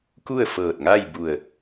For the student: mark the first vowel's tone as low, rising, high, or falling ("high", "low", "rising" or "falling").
falling